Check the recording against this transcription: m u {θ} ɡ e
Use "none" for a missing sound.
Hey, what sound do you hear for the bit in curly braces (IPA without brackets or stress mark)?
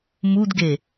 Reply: d